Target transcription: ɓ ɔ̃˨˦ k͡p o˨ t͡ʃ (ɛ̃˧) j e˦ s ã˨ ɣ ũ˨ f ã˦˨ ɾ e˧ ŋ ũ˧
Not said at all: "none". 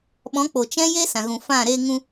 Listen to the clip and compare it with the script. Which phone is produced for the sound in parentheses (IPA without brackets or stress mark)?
ɛ̃˦